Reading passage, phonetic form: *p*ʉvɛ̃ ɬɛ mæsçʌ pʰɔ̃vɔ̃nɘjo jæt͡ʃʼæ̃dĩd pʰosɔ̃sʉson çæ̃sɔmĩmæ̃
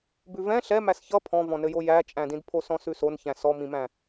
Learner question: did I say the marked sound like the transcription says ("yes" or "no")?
no